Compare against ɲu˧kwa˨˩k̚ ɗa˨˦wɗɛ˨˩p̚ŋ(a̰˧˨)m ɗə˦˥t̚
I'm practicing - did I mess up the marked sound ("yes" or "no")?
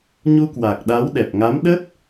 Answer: yes